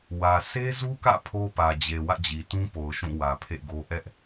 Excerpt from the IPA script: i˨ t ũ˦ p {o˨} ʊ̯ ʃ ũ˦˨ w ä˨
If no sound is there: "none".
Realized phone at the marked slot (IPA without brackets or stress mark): o˨